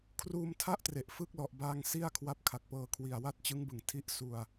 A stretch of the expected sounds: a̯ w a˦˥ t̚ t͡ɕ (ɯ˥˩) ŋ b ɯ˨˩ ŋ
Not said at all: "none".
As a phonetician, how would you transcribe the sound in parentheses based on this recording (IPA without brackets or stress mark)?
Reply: ɯ˦˥